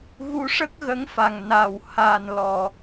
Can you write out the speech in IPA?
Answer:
ɣ u˧ ʂ ə˦˥ k̚ ɣ ə˧˥ ŋ f a˨˩ ŋ n a˨˩ w h a˨˩ n l ɔ˨˩˨

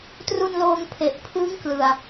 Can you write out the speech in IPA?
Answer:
t r u˧ n l oː˧ ŋ pʰ e˨˩ ʔ pʰ ɯː˦˥ ŋ k l ɯ˨˩ a̯

